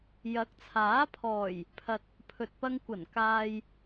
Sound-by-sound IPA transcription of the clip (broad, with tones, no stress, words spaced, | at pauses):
jɐ˨˥k̚t͡sʰaː˨˥ pʰɔː˨˩j | pʰɐ˨t̚ | pʰɵ˨t̚pɐ˧ŋkʷɐ˨˩n kaː˨j